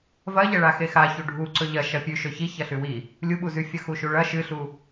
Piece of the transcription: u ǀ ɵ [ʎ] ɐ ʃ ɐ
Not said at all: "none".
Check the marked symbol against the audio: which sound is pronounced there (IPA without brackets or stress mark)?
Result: ʎ